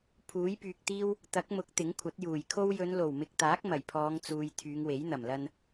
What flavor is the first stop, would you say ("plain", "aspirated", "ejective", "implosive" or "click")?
aspirated